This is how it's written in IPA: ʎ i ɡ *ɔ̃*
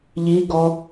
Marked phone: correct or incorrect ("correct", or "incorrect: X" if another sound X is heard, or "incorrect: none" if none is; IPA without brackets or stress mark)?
incorrect: ɔ